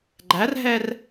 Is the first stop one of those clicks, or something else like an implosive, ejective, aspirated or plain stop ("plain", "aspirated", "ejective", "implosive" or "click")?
click